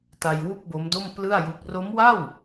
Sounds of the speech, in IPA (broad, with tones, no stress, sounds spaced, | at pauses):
t a˧ j w u˥˩ k̚ b o˦˥ m d o˥˩ m p l ɯ˥˩ a̯ j u˦˥ k̚ r o˦˥ m w a˥˩ w